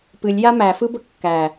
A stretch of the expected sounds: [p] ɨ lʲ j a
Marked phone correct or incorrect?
correct